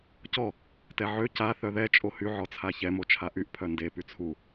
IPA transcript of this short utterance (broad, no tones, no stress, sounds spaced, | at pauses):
c ɔ | t ɛ ʕ ø c a θ œ ð ɛ t͡ʃʼ o h y ʕ ɔ t͡sʰ a ç ɛ m o t͡ʃʰ a ʔ y ʔ pʰ œ n d e p y t͡sʰ u